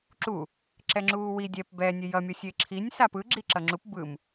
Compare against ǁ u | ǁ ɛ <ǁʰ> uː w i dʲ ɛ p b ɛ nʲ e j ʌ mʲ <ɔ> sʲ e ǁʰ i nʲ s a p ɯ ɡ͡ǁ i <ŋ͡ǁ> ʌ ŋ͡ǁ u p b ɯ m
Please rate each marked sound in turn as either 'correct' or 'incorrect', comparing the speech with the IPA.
incorrect, incorrect, incorrect

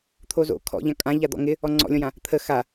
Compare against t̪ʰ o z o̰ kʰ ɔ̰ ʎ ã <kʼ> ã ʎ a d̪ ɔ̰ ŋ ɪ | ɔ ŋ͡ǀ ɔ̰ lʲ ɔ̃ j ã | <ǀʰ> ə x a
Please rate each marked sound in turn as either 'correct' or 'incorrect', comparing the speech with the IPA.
correct, incorrect

